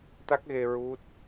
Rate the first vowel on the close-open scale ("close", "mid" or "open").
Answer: open